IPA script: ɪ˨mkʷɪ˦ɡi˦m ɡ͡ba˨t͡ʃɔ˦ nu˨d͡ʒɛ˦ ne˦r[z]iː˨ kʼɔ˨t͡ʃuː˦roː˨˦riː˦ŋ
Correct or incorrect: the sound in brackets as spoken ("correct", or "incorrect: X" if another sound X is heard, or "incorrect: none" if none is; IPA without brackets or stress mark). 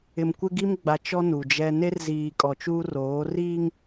correct